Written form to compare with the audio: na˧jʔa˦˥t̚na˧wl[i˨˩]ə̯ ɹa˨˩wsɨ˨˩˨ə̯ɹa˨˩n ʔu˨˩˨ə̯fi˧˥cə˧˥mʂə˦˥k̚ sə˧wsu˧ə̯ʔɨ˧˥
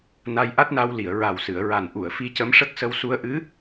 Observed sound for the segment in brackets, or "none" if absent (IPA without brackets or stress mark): i˨˩˨